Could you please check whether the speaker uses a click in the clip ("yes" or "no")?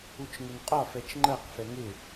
yes